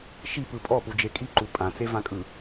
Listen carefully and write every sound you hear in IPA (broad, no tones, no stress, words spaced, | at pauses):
ʃipɯ pʼɔpud͡ʒe kʼiǃu pʼãt͡sevãkʼɯ